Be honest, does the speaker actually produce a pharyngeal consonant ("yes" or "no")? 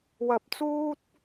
no